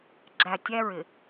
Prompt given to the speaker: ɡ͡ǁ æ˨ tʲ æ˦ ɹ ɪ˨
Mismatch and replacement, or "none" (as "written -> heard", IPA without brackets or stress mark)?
none